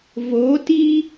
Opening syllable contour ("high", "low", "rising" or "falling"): rising